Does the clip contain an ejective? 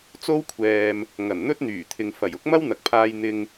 no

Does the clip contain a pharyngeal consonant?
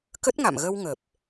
no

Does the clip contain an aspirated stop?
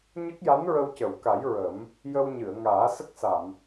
no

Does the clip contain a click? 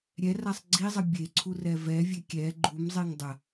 yes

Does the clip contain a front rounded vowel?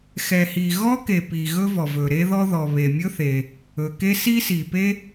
no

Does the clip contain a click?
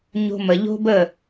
no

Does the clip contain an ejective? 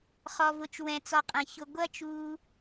yes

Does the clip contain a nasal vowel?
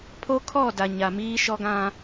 yes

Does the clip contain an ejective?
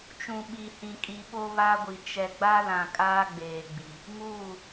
yes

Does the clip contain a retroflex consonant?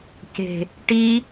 yes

